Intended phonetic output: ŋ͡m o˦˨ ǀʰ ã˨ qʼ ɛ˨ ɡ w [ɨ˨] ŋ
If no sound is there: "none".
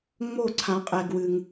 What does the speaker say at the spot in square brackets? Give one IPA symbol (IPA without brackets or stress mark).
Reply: ɨ˨